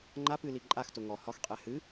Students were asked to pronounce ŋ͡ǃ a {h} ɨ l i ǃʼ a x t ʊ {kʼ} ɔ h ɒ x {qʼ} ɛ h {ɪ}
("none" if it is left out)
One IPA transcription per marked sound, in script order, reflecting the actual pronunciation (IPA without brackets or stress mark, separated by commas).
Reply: p, ŋ, qʼ, ɨ